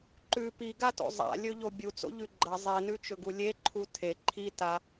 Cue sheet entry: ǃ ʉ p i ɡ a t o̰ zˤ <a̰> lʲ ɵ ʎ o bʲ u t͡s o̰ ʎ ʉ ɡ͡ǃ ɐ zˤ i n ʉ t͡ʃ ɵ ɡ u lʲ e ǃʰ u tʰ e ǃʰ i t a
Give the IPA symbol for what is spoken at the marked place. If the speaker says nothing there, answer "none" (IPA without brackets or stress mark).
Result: a̰